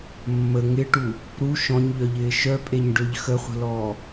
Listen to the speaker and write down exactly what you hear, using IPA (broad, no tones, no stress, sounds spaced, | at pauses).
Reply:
mː ə ŋ ɪ ʈ u | ɾ u ʃ ɔ̃ ɲ ʎ œ ʎ ɪː ʃ œ pʼ e ɲ ɖ ø ʎ x ə χʷ ə̤ l ɔː